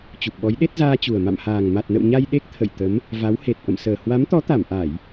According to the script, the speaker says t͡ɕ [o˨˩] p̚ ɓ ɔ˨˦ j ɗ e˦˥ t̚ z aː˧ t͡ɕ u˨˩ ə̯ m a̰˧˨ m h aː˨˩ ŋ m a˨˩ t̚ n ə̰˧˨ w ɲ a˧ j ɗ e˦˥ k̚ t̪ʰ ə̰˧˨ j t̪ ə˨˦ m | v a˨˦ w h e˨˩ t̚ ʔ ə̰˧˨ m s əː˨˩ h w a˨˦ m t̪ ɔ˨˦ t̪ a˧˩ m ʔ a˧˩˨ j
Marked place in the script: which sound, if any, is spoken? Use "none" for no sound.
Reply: u˨˩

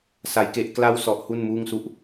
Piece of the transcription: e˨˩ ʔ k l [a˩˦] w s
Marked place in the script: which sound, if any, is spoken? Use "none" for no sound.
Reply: a˦˥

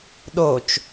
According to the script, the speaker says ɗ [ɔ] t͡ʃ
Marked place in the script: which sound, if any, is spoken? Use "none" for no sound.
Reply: o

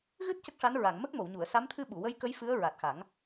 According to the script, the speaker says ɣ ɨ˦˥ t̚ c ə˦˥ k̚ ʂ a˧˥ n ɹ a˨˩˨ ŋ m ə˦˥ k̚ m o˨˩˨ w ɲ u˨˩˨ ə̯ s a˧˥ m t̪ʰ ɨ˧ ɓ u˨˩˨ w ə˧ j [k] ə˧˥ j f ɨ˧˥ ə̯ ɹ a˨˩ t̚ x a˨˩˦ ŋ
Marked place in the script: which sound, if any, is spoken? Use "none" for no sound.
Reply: k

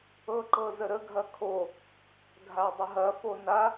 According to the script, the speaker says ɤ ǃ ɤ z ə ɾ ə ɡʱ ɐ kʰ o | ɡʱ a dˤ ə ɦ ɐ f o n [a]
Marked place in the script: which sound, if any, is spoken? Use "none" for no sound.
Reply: a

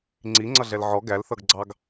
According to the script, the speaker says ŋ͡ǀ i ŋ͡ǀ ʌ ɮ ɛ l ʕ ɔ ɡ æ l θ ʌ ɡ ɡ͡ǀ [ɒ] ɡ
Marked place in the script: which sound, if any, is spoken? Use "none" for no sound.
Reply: ɑ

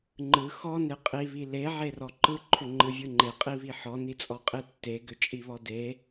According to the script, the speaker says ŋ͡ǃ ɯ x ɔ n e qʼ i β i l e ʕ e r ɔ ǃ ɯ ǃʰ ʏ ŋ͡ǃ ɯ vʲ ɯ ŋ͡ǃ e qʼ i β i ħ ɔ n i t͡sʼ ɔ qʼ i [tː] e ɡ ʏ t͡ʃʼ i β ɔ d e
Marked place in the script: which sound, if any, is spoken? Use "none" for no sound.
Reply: tː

